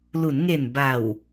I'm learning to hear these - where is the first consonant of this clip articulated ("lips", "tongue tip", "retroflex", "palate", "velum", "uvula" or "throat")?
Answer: tongue tip